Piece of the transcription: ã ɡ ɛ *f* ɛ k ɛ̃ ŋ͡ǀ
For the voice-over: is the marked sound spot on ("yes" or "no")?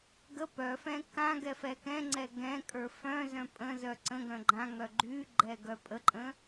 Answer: yes